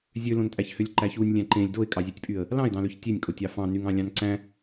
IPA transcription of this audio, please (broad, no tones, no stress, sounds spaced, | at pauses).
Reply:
zʲ ø l õ n tʼ æ ç h ø lʲ ǃ æ ç u nʲ lʲ æ̃ ǃ ẽ lʲ d o ɪ̯ kʼ ɑ zʲ æ tʲ pʼ y ə̯ | l ɑ̃ ɪ̯ d ɑ̃ l ø ç tʲ e nʲ kʼ o tʲ ɑ f ɑ̃ n y ŋ ɑ̃ lʲ ɑ̃ n ǀ æ̃